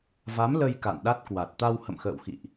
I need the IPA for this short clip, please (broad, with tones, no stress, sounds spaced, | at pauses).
v a˨˦ m l ə˧ j k a̰˧˨ n ɗ a˦˥ t̚ k w a˨˩ t̚ t̪ a˧ w h ə̰˧˨ m x ə̰ː˧˨ w x ḭ˧˨ ʔ